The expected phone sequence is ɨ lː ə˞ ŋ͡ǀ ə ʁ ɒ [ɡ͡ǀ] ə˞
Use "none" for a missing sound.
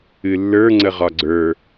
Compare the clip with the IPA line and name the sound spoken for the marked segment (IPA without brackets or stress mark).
ɡ͡ǀ